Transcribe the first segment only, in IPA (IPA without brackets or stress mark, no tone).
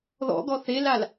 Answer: ð